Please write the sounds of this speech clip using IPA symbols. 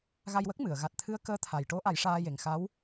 ɣ a˧ j w ə˦˥ k̚ m ɨ˨˩˨ ə̯ ɣ a˨˩ t̚ t̪ʰ ɨ˧˥ ə̯ k əː˧˥ t̪ʰ a˨˩ j ʈ o˧˥ ʔ a˨˩˦ j ʂ aː˧ j e˨˩ ŋ x a˧˥ w

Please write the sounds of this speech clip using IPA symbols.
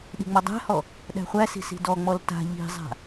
ɗ i̤ ŋ͡m ɔ dˤ æ̤ h ɔ | ɗ æ̤ χʷ æ s i̤ s i̤ d ɔ ŋ͡m ɔ l t a̤ ʎ i̤ zˤ a̤

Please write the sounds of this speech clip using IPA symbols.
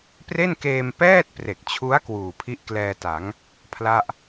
p r e˥˩ n k eː˧ m p ɛː˥˩ t̚ p r e˨˩ k̚ t͡ɕʰ u˦˥ a̯ k w uː˨˩ pʰ i˦˥ ʔ k l ɛː˧ t a˩˦ ŋ | pʰ l a˥˩ ʔ

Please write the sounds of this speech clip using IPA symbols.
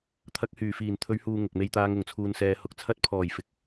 t̪ʰ ɐ˧ k̚ h yː˨˩ f iː˨˩ n t̪ʰ ɵ˨˧ ɥ h uː˨ ŋ ʊ˨ k̚ m e˧ j t̪ aː˧ ŋ ʊ˨˩ ŋ t͡sʰ uː˨ n s ɛː˨ h ʊ˨ k̚ t͡sʰ ɐ˧ t̚ pʰ ɔː˨˩ j f ɪ˨ k̚

